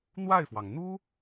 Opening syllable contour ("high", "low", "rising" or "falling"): falling